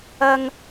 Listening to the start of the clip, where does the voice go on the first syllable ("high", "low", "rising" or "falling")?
high